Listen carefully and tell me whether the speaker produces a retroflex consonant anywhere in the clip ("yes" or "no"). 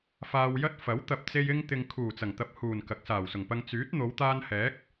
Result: no